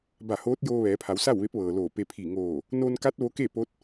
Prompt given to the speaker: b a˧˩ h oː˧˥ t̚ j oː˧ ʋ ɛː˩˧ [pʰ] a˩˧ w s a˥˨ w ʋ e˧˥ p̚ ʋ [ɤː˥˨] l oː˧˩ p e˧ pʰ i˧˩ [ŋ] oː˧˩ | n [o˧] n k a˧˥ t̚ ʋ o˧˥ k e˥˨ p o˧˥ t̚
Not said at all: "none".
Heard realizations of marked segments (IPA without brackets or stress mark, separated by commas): pʰ, ɤː˩, ŋ, o˧